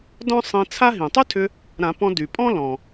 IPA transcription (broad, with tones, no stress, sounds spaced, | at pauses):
d ɔ̃˥ sˤ ĩ˧ t͡sʰ a˥ ɦ ĩ˩ tˤ ʏ˥ tʰ ʏ˧ | ɾ ã˨˩˦ p ɔ̃˧ d y˩ pʼ ɔ̃˥ l ɔ̃˩